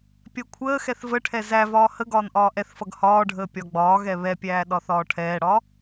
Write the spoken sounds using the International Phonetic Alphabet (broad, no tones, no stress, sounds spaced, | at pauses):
pʲ ɜ kʷʰ əː x ɛ θ v ə ʈʰ ɛ z æ v ɒː h ə ɡ ɒː n ʔ ɒː ʔ ɛ θ f ʌ ɡ h ɒː ɖʱ əː pʲ ɒ ɡ͡b ɒː ɣ ɛ β ɛ pʲ æː ɗ ɒ θ ɒː ʈʰ ɛː ɽ ɒ